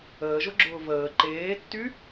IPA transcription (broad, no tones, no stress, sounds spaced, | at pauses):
əː ʒ ʊ ɡ͡ǁ ʊː v əː ǃ eː tː y